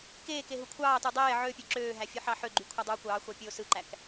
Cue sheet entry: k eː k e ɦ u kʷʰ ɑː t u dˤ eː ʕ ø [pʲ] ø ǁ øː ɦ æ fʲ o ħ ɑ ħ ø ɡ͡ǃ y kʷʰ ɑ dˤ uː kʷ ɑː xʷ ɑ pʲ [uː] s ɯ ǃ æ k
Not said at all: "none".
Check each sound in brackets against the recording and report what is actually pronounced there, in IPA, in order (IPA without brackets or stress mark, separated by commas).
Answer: pʲ, oː